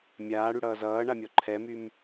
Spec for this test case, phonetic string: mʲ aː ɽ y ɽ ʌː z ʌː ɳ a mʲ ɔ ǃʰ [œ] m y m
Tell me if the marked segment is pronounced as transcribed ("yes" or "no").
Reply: no